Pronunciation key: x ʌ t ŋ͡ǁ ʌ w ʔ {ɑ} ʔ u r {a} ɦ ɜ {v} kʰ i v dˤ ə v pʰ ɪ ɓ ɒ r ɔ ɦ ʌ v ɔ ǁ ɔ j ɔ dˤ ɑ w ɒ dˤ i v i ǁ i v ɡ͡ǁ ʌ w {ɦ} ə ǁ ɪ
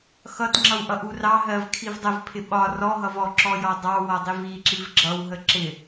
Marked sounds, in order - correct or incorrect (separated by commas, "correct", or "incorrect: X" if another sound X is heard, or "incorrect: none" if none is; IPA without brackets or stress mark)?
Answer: incorrect: ʌ, incorrect: ɑ, correct, correct